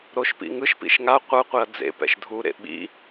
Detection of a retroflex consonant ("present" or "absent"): absent